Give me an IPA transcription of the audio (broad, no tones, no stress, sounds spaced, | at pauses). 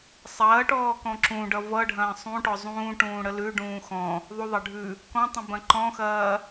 sˤ ɐː ʈ ɔː k ɔ̃ ǁ ũ ɖ ʌ v ʌ ɖʱ ɐ̃ː sˤ ũ ʈ ɔ zˤ ũː ʈ ũː ɽ ə l ʉ ɖ ũː x ɔ̃ | ðˤ u ðˤ ɐ ɖʱ ʉ | k ɔ̃ tˤ ũ b ɐ̃ ǃ ɔ̃ x ɐː